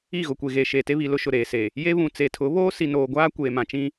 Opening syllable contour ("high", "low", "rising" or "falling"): falling